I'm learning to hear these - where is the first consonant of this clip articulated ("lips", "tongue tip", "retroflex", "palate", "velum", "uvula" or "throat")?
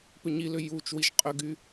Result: lips